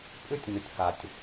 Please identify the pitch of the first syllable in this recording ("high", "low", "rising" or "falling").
high